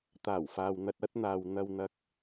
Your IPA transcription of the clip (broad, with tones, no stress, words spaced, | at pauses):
t̪aː˨˩wfaː˨w n̪ɐ˧t̚ɐ˥t̚n̪aː˧w n̪ɐ˧wn̪ɐ˧k̚